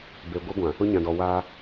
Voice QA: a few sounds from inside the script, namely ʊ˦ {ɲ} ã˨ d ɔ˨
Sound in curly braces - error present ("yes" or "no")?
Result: no